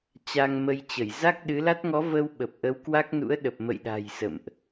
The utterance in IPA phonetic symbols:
t͡ɕa˧ŋmə˧j t͡ɕə˧˩j za˦˥k̚ɗɨ˨˦la˦˥t̚ ŋɔ˨˦və˧w ɓə˨˩p̚ʔə˨˦w kwa˦˥k̚nṵ˧˥ə̯ɗə˨˩p̚ mə̰˧˨jɗa̤˨˩j sə̰˧˨mʔ

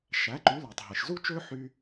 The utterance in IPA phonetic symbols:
ʃæ˩˥ǃy˩˥læ˩tˤ ɦe˩ʃ zu˥t͡ʃø˥ ħy˧

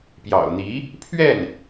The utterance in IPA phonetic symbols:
pjɑ̰˨˩ʊ̯n̪i˧˥ | pʰɥɛ˥˩n

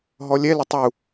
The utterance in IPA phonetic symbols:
ɦɔlʲɛ lətˤu

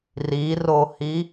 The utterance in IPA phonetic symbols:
rirohi

